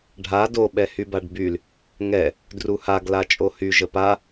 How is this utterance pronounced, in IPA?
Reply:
ɖʱ a d o ɓ ɛ h y b a ɖ b y l | ŋ ɛ | d r u h a ɡ l a t͡ʃʼ o h y ʒ ə p a

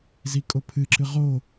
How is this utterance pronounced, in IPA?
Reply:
z i kʼ o pʰ ɨ ǁ ɨ ʁ o

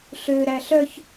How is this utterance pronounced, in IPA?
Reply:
ɬ ø ɾ æ ɬ œ ç

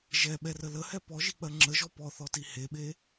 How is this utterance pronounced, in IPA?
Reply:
ʒ ɛ ɓ ɛ r ə l ə h ɛ p ɔ ʒ i k͡p ɜ ŋ͡ǁ ə ʒ ɔ p ɔ θ ɔ t i h e ɓ e

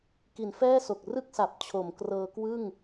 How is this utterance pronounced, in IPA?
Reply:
k i˩˦ n f ɛː˥˩ s o˨˩ k̚ r ɯ˥˩ k̚ s a˨˩ p̚ t͡ɕʰ o˩˦ m k r ɤː˧ k w ɯ˥˩ ŋ

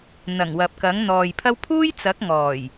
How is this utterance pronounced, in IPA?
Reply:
n̪ ɐ˨˩ ŋ w ɐ˨ p̚ k ɐ˨˥ ŋ n̪ ɔː˨ j pʰ ɐ˥ w pʰ uː˥ j t͡s ɐ˨˥ k̚ ŋ ɔː˨˩ j

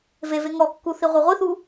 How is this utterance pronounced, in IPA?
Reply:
v e v e ŋ ɔ kː u θ i ʁʷ ɛ ʁʷ i θ u

